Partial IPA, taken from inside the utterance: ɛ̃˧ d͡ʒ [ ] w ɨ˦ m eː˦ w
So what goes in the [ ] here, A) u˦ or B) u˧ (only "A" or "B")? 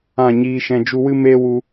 B